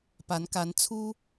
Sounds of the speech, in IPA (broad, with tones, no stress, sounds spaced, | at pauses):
p a˨˦ n k a˨˦ n t͡sʰ u˦